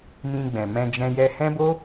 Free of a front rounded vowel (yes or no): yes